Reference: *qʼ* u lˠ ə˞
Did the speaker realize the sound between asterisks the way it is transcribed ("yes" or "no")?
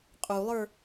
yes